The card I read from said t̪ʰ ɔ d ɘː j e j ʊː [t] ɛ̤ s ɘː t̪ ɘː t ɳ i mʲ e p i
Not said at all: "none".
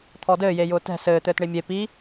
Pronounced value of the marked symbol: t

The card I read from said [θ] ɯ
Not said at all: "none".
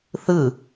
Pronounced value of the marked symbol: θ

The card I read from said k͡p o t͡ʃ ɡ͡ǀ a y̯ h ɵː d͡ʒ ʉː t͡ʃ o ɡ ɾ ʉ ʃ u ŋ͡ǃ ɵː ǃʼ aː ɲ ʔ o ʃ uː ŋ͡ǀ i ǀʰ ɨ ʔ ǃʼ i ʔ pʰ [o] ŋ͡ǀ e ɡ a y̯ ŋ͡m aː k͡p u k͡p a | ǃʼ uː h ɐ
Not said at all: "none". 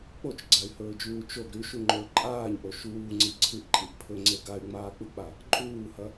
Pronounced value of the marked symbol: ɵ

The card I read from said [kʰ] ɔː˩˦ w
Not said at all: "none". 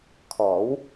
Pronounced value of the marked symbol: kʰ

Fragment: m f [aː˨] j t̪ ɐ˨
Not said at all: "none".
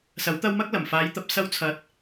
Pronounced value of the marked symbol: aː˨˧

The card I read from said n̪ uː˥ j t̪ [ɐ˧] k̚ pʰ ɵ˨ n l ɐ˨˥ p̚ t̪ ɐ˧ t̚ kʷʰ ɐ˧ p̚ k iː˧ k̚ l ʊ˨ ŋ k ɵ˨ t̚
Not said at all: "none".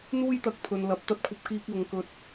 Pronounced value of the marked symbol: ɐ˧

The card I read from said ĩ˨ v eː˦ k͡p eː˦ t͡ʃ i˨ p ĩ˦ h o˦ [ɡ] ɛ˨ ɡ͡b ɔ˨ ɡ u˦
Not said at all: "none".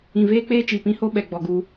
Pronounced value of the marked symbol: ɓ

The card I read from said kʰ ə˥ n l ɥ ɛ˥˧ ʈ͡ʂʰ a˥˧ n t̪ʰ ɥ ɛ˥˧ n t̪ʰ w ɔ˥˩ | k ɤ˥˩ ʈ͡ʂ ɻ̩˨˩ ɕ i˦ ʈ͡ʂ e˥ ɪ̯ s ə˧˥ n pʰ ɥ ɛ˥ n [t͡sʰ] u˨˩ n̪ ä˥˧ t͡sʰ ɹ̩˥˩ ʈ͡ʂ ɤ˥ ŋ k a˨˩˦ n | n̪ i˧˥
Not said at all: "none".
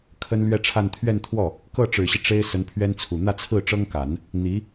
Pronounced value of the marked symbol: t͡sʰ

